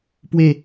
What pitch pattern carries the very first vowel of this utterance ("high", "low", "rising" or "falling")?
falling